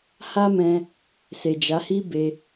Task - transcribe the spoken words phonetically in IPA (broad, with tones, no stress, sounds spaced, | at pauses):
h a˦ m ɛ̃˧ | s e˨ d͡ʒ a˨˦ h i˦ b e˧